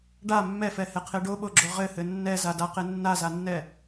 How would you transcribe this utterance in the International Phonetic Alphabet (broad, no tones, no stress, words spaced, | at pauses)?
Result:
ɖa mːɛfɛhɛqʰe ɖoɓoɡ͡ǁo ʁɘhɘ nːɛzadaqe nːazanːɛ